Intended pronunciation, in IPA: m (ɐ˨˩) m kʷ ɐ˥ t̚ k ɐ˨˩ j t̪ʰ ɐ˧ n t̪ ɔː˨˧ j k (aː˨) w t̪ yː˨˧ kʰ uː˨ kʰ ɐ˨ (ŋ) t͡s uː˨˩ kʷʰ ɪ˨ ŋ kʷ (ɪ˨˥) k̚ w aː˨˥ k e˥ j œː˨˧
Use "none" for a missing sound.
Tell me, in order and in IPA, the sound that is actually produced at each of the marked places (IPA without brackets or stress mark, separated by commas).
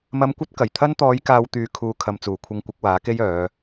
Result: ɐ˧, aː˨, m, ɪ˨˥